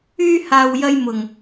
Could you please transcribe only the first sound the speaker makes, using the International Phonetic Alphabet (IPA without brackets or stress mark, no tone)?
yː